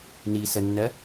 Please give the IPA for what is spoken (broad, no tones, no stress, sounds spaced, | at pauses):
n iː s ə nː ɜ